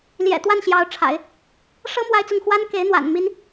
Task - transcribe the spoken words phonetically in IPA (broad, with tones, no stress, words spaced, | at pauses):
ljɛ̰˨˩ t̪wa˥˩nɕjɑ˧˥ʊ̯ʈ͡ʂʰa̰˨˩˦ɪ̯ | ʂɤ˥ mwa˥ɪ̯t͡sʊ˥˩ŋ xwa˥nke˧˥ɪ̯n̪wa̰˨˩n mi˥n